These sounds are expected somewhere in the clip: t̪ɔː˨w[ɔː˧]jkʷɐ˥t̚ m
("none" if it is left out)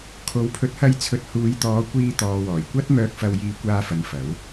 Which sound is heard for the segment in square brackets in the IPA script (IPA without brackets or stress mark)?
ɔː˨˩